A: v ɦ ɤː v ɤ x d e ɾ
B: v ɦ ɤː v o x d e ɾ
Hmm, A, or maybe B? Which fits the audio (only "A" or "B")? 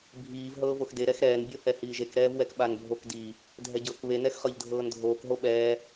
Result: B